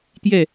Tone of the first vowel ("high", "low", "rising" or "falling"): falling